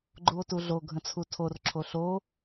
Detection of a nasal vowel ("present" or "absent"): present